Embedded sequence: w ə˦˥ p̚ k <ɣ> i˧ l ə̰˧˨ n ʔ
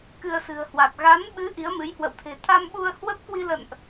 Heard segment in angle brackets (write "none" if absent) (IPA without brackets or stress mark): w